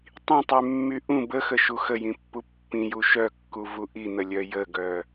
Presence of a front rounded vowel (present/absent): present